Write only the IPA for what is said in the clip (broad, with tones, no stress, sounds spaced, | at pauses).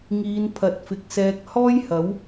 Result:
ŋ iː˨˧ n pʰ ɐ˨ t̚ f ɪ˨ k̚ s ɛː˧ k̚ h ɔː˥ j h ɐ˨˥ w